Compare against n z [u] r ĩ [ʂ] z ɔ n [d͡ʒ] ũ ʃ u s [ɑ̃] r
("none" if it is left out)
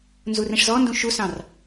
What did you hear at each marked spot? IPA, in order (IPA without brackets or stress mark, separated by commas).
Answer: u, ʂ, d, ɑ̃